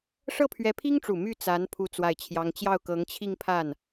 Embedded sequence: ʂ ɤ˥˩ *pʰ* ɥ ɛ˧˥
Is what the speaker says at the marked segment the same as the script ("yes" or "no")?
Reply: yes